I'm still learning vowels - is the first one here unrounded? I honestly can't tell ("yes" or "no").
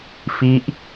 yes